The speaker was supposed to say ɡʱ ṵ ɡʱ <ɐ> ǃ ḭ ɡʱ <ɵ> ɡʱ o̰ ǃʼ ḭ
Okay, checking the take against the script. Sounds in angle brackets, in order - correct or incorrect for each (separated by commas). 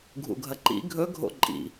correct, correct